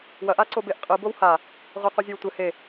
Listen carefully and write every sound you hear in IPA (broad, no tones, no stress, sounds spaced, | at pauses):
w ɐ ʔ a ǀ o b e ʔ qʼ ɨ b o w h a | ʁʷ ɘ q u zʲ ɨ w tʷ ɘ h e